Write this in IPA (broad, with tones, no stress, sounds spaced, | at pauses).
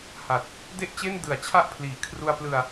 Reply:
h a˨˩ t̚ | d e˥˩ ʔ t͡ɕ e˥˩ n d ɯ˨˩ a̯ t͡ɕʰ a˥˩ ʔ pʰ l iː˩˦ kʰ r u˧ a̯ p l ɯ˧ a̯